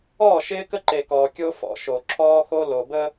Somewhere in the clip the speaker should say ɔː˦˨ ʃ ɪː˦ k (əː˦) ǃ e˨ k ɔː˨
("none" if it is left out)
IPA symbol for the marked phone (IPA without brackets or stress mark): ə˦